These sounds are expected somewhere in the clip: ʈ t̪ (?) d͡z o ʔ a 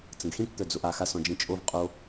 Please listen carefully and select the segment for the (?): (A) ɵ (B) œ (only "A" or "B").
B